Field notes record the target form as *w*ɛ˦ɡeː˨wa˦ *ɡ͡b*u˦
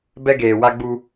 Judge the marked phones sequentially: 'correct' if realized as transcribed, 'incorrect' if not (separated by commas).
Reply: incorrect, correct